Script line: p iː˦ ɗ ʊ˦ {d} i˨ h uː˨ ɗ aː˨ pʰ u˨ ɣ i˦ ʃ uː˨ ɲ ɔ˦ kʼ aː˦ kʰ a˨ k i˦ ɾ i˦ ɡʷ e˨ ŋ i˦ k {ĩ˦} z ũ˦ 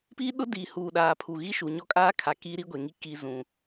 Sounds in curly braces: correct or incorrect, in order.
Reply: correct, incorrect: i˦

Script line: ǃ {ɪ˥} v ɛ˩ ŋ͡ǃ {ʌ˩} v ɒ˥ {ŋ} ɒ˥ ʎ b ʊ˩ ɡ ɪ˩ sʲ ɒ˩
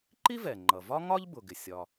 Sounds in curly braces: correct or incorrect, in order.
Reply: incorrect: i˥, correct, correct

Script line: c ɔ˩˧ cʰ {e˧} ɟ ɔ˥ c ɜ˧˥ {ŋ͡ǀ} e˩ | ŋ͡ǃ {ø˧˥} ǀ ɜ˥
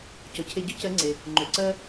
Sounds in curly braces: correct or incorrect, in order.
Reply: correct, correct, incorrect: ø˩

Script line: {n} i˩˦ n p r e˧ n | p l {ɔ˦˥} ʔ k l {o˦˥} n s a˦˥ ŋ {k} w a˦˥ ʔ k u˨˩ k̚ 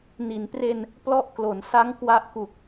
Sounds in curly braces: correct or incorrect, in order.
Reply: correct, correct, incorrect: o˩˦, correct

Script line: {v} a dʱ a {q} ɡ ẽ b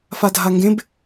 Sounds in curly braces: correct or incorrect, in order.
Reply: incorrect: f, incorrect: ŋ

